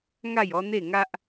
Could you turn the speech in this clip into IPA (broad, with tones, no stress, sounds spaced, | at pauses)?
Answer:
ŋ a˥˧ j ɔ˦ n̪ e˥˧ ŋ a˦ ʔ